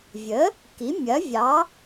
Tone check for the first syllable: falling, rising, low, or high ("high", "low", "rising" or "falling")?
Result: rising